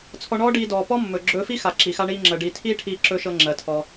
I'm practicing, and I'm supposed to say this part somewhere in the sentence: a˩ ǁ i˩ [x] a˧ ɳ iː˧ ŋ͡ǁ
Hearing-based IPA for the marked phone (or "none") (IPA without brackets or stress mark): x